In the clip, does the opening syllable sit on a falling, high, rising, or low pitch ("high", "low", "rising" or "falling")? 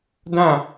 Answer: falling